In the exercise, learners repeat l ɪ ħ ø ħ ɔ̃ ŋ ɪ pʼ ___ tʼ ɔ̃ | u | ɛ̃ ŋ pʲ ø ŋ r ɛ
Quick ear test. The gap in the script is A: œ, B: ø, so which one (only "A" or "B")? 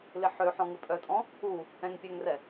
A